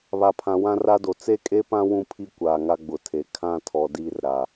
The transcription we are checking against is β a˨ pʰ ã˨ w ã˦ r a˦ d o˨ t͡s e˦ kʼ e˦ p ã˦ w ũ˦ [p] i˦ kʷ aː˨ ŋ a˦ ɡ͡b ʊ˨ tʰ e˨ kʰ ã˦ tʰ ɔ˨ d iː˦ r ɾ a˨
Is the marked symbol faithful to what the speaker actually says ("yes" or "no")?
no